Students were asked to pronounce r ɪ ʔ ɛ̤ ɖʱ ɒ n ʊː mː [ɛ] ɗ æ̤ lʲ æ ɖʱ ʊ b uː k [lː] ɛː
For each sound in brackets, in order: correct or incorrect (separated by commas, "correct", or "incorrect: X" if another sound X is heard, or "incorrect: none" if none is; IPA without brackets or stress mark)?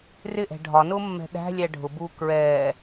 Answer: incorrect: ɛ̤, incorrect: ɹ